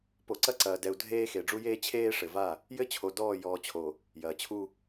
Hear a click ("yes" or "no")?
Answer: yes